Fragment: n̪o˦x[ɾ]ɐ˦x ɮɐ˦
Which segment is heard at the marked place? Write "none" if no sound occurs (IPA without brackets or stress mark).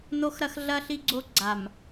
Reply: ɾ